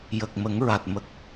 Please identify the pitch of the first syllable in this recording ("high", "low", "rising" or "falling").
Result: low